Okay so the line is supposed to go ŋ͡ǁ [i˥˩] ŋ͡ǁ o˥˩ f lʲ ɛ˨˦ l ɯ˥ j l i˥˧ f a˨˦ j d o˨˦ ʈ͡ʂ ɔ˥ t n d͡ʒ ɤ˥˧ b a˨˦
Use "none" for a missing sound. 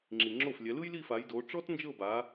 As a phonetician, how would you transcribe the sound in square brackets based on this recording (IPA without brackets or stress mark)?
i˨